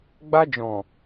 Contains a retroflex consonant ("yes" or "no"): no